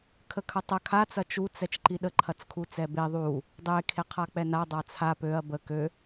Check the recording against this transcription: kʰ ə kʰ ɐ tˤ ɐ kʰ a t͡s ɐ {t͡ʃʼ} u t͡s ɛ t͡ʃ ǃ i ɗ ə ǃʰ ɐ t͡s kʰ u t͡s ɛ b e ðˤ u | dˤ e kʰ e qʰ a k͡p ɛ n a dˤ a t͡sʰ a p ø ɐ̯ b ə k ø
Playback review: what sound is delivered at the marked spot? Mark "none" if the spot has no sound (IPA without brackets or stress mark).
t͡ʃ